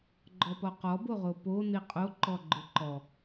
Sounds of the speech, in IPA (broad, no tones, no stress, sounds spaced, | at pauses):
ɡ͡ǃ ɔ p ɔ q ɔ b o ʁ o p o n i qʼ o ǃ ɔ ɡ͡ǃ ʊ ǃ ɔ